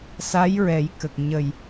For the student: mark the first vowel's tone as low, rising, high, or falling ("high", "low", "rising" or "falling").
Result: rising